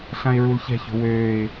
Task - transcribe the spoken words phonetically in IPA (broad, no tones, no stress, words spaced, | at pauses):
ɬãɪ̯ɹulçɛ̤ço̤ wøːɪ̯